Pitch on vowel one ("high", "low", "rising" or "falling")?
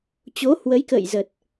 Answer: rising